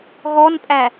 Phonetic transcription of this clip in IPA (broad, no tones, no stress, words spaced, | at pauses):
ɣɔnpʼæ